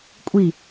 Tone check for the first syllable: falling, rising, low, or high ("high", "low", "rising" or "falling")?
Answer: falling